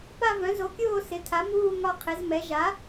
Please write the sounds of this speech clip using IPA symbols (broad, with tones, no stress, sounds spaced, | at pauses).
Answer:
p a˥˧ v œ̃˩˥ z o˩˥ kʲ oː˥˧ s ɪ˩˥ tʰ a˩˥ m uː˥˧ ŋ ɒ˥˧ qʰ ɪ˩˥ z m ɛ˩˥ ʒ a˩˥